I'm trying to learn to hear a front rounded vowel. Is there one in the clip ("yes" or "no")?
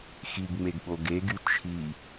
yes